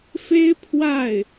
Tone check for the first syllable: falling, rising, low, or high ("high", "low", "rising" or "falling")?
high